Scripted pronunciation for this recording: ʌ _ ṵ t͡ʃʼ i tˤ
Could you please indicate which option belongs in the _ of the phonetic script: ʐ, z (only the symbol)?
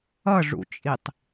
ʐ